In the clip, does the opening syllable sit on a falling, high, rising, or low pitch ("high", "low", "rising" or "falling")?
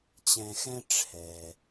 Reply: low